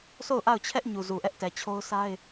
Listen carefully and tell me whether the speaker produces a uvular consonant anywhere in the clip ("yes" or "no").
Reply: no